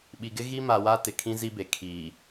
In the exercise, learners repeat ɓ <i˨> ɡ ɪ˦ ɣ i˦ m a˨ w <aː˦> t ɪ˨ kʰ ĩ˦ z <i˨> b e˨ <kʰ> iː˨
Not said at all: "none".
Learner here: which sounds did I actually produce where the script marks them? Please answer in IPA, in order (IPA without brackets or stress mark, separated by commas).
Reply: i˨, a˦, i˦, kʰ